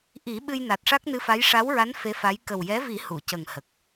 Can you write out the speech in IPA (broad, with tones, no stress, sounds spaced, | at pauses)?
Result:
ʔ i˨˩˦ ɓ ɨ˧ j n a˨˩ t̚ ʂ a˦˥ k̚ n ɨ˧˥ f a˧˥ j ʂ a˧˥ w ɹ a˧˥ n f e˧˥ f a˧˥ j k ə˨˩ w j ɛ˧˥ v i˨˩˦ h u˨˩˨ c ə˨˩ ŋ h ə˨˩ k̚